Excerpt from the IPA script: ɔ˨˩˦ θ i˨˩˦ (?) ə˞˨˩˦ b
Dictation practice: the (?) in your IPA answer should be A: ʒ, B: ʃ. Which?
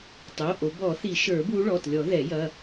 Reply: B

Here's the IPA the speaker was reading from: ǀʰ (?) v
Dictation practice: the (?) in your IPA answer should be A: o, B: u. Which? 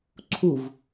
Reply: B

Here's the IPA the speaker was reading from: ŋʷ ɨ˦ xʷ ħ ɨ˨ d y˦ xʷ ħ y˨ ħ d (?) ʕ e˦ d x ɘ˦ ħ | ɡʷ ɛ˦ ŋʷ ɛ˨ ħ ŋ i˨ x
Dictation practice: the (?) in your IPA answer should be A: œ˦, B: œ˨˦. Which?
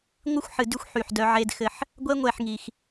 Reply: A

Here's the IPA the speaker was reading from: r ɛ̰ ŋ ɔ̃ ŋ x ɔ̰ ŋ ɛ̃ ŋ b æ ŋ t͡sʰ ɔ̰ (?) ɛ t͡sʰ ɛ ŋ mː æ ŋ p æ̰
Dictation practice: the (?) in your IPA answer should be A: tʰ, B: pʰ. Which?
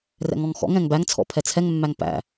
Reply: B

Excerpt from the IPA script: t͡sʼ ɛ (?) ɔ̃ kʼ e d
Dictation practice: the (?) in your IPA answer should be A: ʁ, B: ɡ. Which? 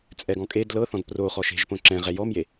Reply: B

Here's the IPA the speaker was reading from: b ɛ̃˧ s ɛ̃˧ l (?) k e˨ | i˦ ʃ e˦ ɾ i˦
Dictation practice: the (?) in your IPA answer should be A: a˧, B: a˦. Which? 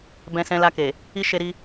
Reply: A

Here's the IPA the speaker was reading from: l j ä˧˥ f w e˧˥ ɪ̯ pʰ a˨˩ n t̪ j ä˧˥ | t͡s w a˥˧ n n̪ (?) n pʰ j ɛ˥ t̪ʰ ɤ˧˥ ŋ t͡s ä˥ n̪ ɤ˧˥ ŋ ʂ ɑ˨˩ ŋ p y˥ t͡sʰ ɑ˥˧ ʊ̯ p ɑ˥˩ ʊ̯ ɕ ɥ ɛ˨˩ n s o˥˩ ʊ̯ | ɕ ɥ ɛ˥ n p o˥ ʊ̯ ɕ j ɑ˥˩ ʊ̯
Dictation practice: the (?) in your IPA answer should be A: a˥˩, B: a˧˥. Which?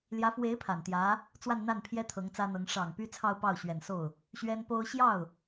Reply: A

